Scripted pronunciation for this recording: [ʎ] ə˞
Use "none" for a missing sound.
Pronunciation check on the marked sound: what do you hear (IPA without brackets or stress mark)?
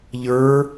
ʎ